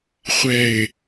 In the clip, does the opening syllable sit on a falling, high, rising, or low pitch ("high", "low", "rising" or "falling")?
low